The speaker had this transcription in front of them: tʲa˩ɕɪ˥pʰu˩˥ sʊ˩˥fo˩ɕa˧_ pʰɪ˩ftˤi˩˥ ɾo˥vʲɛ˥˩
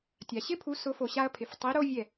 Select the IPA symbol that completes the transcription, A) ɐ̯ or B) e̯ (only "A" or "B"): A